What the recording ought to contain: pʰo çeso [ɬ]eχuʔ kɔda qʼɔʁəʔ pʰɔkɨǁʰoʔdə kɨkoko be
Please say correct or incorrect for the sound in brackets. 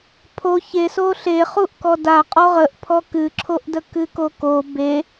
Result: correct